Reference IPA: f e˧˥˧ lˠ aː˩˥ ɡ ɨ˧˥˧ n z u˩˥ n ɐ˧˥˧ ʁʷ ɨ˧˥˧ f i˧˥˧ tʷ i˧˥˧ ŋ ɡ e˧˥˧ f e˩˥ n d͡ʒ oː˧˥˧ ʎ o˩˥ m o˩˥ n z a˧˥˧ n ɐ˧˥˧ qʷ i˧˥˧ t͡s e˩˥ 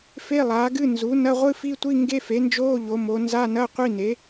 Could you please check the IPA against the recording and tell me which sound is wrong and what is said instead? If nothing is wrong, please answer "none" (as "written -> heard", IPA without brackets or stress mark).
t͡s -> n